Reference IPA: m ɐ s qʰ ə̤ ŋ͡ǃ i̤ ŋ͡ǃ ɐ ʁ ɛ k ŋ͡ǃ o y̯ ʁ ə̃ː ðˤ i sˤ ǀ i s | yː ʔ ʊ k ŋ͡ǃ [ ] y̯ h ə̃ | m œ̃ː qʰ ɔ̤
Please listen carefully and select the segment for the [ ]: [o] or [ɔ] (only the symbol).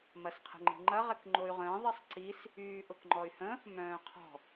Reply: ɔ